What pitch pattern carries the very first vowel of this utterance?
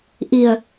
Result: low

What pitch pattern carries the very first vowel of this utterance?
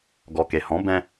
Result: low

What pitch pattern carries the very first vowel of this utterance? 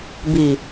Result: low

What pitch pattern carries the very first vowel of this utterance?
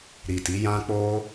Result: low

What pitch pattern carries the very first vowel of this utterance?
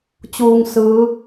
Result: low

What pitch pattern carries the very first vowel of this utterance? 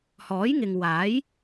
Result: rising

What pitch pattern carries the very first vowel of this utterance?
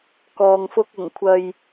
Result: low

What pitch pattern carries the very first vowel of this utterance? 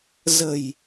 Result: low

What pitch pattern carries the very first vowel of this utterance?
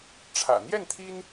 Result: low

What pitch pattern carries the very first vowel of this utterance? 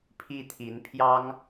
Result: falling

